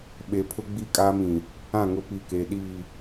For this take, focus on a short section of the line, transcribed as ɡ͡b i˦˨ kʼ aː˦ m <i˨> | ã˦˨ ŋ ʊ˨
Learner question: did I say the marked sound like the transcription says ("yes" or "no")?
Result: no